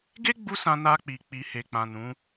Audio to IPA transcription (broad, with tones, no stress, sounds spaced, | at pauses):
ɡ e˦ ɡ͡b u˧ s ã˧ n a˧ k͡p i˨ k͡p i˨ h e˨ k͡p ã˨ n ũ˨˦